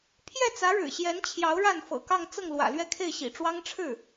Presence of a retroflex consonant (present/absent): present